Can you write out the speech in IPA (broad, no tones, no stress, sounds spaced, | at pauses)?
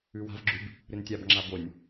ʉ w a̤ v ɡ͡ǁ ʉ b | ɾ ɨ n tʲ a b ŋ͡ǁ a b o nʲ